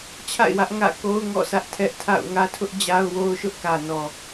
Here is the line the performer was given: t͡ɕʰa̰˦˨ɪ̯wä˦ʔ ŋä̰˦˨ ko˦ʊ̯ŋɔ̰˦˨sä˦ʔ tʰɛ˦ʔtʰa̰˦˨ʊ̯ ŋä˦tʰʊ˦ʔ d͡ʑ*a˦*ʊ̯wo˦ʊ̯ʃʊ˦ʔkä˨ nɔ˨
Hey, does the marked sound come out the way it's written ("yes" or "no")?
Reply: yes